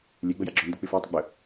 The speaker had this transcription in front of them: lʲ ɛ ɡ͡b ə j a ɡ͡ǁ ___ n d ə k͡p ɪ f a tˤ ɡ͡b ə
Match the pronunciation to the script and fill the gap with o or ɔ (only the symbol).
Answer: ɔ